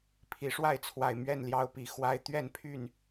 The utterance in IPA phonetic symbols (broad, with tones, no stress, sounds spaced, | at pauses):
pʰ i˨˦ ʂ w a˥˨ ɪ̯ t͡sʰ w a˨˩ ɪ̯ m ɥ ɛ˥˨ n l j ɑ˦ ʊ̯ p i˨˩ x w a˦ ɪ̯ t̪ ɥ ɛ˥˨ n pʰ y˥˨ n